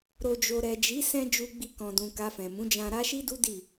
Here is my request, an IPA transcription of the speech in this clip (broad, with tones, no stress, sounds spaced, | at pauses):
ɾ o˨ d͡ʒ o˨ ɾ ɛ˨ d͡ʒ i˨˦ s ɛ̃˧ d͡ʒ u˧ ɡ͡b i˧ k ɔ̃˨ d ũ˨ k a˧ f ɛ̃˨ m ũ˨˦ d͡ʒ ã˧ ɾ a˦ ʃ i˦ d u˦ d i˦˨